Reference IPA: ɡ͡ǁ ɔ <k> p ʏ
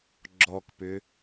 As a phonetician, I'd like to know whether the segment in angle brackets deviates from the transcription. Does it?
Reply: no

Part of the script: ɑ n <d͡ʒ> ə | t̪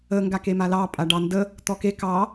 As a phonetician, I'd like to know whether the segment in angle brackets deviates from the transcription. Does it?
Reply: yes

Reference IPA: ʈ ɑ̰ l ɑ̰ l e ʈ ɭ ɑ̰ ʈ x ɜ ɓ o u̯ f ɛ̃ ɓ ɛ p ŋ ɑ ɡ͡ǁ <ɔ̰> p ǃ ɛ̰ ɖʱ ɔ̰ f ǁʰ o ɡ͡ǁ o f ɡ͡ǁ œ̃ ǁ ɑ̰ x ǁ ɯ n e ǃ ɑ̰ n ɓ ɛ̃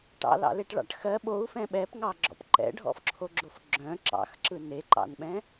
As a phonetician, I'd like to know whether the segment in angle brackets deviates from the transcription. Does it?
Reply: no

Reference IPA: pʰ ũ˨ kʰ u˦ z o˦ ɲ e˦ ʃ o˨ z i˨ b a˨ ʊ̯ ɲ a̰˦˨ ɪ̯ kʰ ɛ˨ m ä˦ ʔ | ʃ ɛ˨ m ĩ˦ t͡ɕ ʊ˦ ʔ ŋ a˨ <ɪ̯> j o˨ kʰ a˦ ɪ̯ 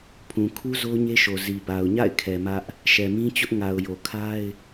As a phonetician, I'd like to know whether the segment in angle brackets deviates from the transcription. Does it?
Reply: yes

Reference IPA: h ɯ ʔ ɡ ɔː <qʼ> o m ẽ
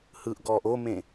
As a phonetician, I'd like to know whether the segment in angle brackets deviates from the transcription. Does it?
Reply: yes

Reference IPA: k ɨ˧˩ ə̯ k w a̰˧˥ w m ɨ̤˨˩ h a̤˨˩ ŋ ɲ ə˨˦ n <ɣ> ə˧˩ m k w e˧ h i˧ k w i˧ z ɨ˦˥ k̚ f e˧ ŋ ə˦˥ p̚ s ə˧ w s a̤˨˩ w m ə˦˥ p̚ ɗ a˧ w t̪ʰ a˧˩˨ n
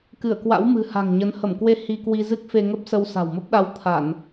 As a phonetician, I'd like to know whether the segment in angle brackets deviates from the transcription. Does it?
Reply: yes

